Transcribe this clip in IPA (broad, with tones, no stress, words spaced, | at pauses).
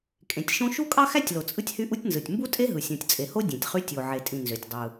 kʼẽ˩tʲʃõ˥ ʃu˥kʼɑ˥xæ˥tʲlo˩ t͡sʼɯ˥tʲhy˥ʔu˥tʲnzɯ˩tʲ mbu˥tʼe˥ɦɯ˩ sʲõ˩tʲt͡sʼe˩ho˥ dʲẽ˩tʲχy˥ tʲo˩ ʕe˩tʼĩ˩ nzø˩tʲdˤɯ˩